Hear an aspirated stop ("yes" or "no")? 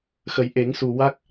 no